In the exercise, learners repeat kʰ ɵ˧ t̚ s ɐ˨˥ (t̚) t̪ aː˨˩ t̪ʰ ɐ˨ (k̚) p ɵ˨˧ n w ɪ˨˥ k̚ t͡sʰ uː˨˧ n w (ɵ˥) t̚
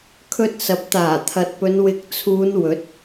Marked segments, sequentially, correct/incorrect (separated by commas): incorrect, incorrect, incorrect